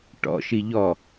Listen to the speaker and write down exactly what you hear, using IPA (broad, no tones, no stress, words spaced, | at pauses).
ʈɔ̰ʃi ʎɔ